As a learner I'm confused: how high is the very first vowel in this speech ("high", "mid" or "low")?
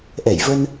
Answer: mid